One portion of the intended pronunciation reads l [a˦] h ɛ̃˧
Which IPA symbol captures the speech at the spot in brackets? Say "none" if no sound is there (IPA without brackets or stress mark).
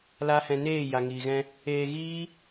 a˦